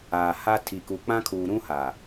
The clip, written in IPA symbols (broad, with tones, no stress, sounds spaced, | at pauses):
aː˨ h a˦ tʰ i˨ k u˨ k͡p ã˦ kʰ uː˨ ɾ ũ˦ h a˨